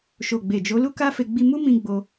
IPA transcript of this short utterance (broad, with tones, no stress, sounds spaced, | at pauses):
ʃ o˨ ɡ͡b e˨ d͡ʒ o˨˦ l u˦ k a˦ f e˧ ɡ͡b i˧ m u˦ m ĩ˧ ɡ͡b o˧